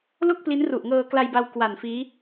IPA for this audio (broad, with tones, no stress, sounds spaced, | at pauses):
l o˥˩ k̚ p l i˦˥ n r u˨˩ ʔ ŋ ɤː˧ k l a˧ j b a˧ w k w a˨˩ n f iː˦˥